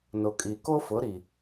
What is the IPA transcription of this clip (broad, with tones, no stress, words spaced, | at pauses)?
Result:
nʊ˨kʼi˨ ko˦fʊ˨˦ɾi˨